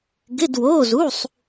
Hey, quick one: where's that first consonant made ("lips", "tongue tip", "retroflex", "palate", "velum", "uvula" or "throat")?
velum